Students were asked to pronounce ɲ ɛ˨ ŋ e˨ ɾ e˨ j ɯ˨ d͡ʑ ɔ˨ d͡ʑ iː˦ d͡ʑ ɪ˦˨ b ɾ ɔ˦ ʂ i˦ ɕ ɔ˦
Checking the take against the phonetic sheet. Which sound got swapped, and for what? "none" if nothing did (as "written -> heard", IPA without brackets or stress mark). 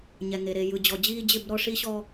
none